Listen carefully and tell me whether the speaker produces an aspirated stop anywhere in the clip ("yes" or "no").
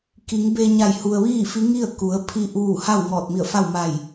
yes